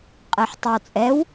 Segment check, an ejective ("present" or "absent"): present